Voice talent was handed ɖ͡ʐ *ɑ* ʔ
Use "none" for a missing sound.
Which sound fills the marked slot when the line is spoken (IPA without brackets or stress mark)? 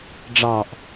ɑ